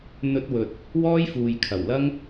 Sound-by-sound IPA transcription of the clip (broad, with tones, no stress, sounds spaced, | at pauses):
n̪ ɵ˥ t̚ w ɵ˧ t̚ | w ɔː˥ j f uː˨ j kʰ ɐ˨˩ w l ɐ˥ ŋ